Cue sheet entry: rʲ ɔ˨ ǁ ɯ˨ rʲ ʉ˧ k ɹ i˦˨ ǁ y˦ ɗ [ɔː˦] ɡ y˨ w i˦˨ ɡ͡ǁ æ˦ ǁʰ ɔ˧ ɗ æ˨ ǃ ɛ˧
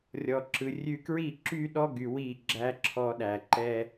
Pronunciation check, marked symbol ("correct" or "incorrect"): incorrect